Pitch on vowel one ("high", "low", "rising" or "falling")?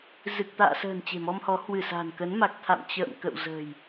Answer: low